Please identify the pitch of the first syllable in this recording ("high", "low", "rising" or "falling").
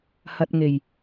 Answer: low